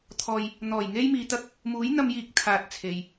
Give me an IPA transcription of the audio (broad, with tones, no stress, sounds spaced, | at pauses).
t̪ʰ ɔː˧ j | n̪ ɔː˨˩ j ŋ e˥ j m iː˨˧ t̪ ɐ˥ k̚ | m uː˨˥ j n̪ ɐ˧ m j iː˨˥ k̚ t̪ʰ aː˧ t̚ t͡sʰ e˨ j